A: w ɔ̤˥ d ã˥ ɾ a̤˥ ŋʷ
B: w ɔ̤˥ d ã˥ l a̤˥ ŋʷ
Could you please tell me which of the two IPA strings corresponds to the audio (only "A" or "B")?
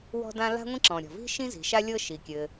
B